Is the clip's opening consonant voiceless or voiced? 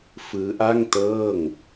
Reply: voiceless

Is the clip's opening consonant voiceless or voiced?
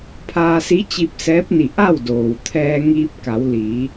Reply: voiceless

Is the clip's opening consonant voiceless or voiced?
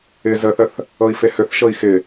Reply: voiced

